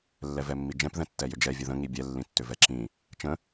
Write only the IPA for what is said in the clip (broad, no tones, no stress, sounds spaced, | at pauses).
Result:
lː ɛ v ɛ mː i d͡ʒ ɛ̃ p ð ɛ̃ tː ɛ j ʏ d͡ʒ ɛ vʲ ə ð ə̃ ŋ i bʲ ɛ lː ĩ tː ʏ v ɛ ǁ ĩ | t͡ʃ ə̃